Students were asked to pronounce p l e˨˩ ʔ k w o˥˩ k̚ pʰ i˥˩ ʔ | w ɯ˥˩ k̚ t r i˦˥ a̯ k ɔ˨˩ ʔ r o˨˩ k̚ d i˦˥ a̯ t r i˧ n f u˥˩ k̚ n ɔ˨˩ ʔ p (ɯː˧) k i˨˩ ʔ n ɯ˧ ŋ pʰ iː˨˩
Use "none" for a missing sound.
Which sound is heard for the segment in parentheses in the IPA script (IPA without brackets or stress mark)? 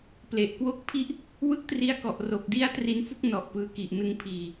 ɯː˧